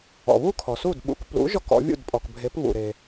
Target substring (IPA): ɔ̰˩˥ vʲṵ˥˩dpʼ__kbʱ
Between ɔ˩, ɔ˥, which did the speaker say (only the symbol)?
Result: ɔ˩